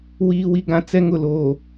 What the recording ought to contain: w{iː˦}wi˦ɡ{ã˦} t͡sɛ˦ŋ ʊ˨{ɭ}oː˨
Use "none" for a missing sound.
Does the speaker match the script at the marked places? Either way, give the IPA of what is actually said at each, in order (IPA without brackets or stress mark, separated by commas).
iː˦, ã˦, l